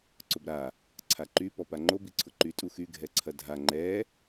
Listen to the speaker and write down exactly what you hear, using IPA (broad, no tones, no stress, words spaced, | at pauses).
ǀʊbɾa | ǀʰaǃy pɔpaŋ͡ǃo biǀʰʊǃy tʼuxy ɡʱɛǀʰɐdʱa ŋ͡ǃɛ